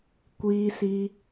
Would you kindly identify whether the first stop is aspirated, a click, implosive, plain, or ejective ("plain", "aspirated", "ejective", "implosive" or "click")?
plain